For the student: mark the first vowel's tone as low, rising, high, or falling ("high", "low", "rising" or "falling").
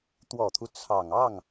low